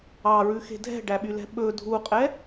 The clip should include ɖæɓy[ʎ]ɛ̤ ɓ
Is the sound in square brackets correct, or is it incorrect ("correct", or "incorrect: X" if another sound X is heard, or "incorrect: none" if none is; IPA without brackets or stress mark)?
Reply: incorrect: l